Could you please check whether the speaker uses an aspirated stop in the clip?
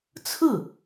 yes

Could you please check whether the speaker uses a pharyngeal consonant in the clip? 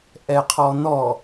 no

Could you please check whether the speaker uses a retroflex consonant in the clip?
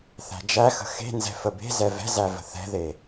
no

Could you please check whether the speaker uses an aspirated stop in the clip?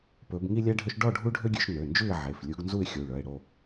no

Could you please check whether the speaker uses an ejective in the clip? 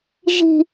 no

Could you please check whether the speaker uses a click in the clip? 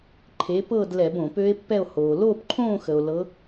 yes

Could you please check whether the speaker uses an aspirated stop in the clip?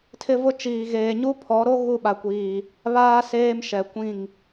yes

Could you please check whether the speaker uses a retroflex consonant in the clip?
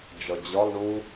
yes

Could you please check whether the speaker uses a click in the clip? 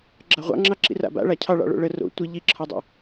yes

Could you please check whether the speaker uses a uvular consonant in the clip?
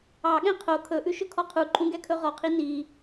yes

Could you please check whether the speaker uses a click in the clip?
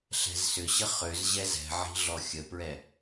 no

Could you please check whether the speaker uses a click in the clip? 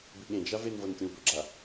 yes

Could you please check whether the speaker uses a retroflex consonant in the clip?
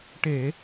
yes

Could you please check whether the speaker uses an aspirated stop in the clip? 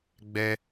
no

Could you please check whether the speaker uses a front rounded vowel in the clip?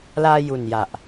no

